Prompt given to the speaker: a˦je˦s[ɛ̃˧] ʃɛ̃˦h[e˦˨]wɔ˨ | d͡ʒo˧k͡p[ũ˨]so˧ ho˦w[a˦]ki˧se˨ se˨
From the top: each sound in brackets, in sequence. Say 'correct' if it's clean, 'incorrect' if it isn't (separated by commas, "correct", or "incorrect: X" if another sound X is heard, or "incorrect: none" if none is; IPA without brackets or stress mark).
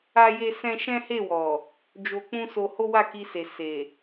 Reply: incorrect: ɛ̃˦, correct, incorrect: ũ˦, incorrect: a˦˨